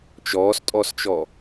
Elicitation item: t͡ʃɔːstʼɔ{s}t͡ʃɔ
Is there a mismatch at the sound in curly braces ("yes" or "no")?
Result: no